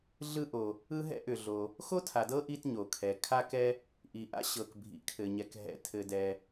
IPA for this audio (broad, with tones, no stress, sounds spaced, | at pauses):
ɮ ɯ˥ ʔ o˨ | ɯ˥ ɦ ɛ̰˥ ʔ ʏ˨ ɮ o˨ | x o˥ tʰ a˨ d ɤ˥ ʔ i˥ t ɲ o˨ kʰ ɛ˨ kʰ a˥ k ɛ˥ | ʔ i˨ ʔ a̰˥ ɕ ɤ˨ k bʱ ḭ˨ kʰ ɘ˨ ɲ ɛ˨ k ɦ ɛ̰˨ tʰ ɘ˨ d ɛ˨